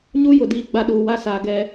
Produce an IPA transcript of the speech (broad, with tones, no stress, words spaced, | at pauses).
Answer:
ɲu˦ jʊ˨diː˦˨ɡ͡ba˦ ɗuː˨wa˦saː˨ ɡɛ˨